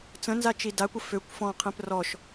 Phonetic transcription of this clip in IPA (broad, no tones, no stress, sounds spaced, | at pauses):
t͡s ə̃ n z a t͡ʃ i d a kʷ ə f ø kʷ f ɔ̃ qʰ ẽ p r ɔ ʃ